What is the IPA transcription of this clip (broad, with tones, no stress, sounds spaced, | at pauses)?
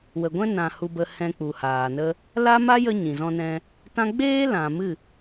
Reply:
w ə˨ ɡʷ ɛ̃˦ n ã˨ h u˧ b ə˧ h ɛ̃˧ k͡p u˨ h aː˨ n ə˧ | l a˦ m a˦ j ə˦ ɲ ĩ˨ z ɔ̃˧ n ɛ̃˧ | t ã˦ ɡ͡b eː˦ l ã˨ m ɨ˦˨